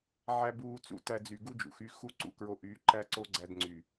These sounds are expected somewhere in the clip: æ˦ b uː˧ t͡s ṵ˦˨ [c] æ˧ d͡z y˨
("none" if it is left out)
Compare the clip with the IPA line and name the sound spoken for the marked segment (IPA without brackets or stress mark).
t